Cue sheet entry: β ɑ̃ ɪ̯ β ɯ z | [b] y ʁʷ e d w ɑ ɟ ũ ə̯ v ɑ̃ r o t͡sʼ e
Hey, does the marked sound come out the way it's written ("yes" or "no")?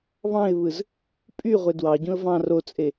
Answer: no